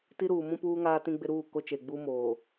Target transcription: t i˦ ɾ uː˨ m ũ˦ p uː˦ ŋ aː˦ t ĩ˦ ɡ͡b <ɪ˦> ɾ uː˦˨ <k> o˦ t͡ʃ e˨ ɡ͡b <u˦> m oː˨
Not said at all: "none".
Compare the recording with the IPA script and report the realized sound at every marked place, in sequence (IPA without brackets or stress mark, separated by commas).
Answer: ɪ˦, k, u˦